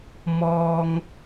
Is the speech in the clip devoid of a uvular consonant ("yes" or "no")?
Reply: yes